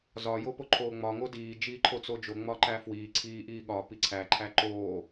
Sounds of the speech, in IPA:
zɒ jopoǃʰoːŋ͡mɒ ŋodiː d͡ʒiːǃʰot͡sod͡ʒo ŋ͡mɒǃæfwiː ǀʰiːʔiːɠɒ piǀʰæ ǃʰæǃoː

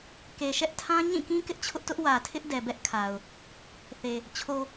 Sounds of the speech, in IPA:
ke˨ʃɛ˦ʔtʰã˦ ɲĩ˦˨kĩ˦ kɪ˦ʔt͡ɕʰʊ˦ʔtʊ˦ʔ wä˨tʰɪ˦ʔ dɛ˨bɛ˦ʔkʰa˨ʊ̯ | θe˨ | t͡ɕʰo˨

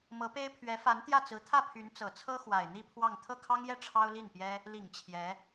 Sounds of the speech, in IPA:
mɤ˧˥pe˥ɪ̯ pʰɥɛ˧˥fa˧˥nt̪jä˥˩t͡sɹ̩˧˥ t̪ʰä˥˩pʰy˧˥n t͡sɤ˨˩t͡sʰɤ˥ xwa˨˩ɪ̯n̪i˥˧ pʰwɑ˥˧ŋ t̪ʰɤ˥˩kʰɑ˥ŋjɛ˥˩ ʈ͡ʂʰɑ˥ʊ̯li˥˩n pjɛ˥ | li˨˩ŋ t͡ɕʰjɛ˧˥

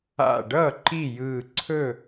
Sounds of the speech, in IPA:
a̰˧˩ɖʌ˥˩ ǃi˥˩jɯ˧˩ ǀʰɵ˥˩

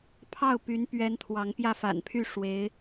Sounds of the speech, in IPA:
pʰɑ˥˩ʊ̯py˧˥n pɥɛ˥nt̪ʰwɑ˧˥ŋ pjä˥˩fa̰˨˩npʰy˥˩ ʂwe˧˥ɪ̯

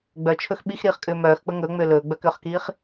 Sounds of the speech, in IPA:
ɡ͡bœt͡ʃʰɵx ɓixɾiːχkʼʏː mœːxk͡pə ŋɵːŋ͡mʏː lɵːɡ͡bœkʏːχkiːχ

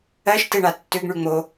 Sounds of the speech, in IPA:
ɜʃteɳa tːʏɡɳy ŋ͡mo

